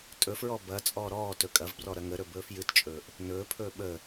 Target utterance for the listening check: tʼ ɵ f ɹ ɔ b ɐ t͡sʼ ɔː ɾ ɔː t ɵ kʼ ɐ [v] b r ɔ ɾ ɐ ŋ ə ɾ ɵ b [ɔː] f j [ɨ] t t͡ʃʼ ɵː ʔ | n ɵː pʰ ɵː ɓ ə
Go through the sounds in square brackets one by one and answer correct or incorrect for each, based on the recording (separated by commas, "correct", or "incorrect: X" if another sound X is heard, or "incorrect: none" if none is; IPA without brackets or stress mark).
correct, incorrect: ɵː, correct